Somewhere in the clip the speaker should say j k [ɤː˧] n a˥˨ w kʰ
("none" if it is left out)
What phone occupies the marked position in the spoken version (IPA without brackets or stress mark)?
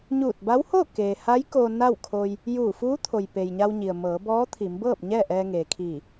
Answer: oː˧